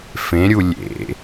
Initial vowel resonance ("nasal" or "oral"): nasal